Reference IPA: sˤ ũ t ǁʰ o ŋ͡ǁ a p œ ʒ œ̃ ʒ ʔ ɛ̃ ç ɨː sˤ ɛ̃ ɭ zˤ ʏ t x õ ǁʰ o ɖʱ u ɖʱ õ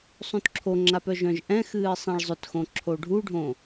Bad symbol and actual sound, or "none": ç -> x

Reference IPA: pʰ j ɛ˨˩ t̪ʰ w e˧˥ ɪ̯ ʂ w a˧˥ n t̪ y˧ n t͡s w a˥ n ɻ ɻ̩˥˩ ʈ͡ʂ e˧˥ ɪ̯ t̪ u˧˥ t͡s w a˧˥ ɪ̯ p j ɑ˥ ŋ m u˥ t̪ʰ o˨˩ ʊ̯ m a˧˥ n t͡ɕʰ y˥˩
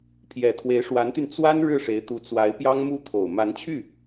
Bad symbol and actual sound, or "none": ʈ͡ʂ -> ʂ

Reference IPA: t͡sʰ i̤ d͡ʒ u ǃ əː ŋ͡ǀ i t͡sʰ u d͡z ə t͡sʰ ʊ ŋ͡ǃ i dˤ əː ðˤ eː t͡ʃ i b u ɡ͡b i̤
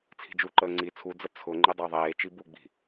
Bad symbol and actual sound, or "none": none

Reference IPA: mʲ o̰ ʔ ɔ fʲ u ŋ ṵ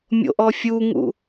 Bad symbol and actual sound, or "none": none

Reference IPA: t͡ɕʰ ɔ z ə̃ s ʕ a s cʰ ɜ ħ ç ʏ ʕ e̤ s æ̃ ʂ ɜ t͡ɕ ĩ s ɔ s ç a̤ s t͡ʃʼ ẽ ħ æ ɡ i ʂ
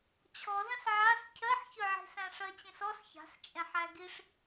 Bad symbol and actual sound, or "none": none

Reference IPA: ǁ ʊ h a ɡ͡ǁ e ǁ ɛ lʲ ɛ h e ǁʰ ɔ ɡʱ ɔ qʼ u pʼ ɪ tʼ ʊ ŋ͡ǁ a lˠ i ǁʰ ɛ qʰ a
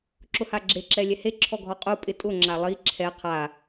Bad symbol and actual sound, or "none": none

